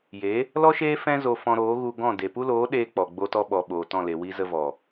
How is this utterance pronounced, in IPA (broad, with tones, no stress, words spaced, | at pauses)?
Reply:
je˨˦ | lɔ˦ʃeː˦ fɛ̃˦zo˧ fɔ̃˧ɾoː˨˦ɣu˧ɡɔ̃˦˨ de˨pu˦loː˨˦ ɗeː˧ k͡pɔ˨ɡ͡bo˧tɔ˧ɓɔ˨ ɓoː˨tɔ̃˦˨le˨wi˦ zə˧vɔ˨